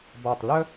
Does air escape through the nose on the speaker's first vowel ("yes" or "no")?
no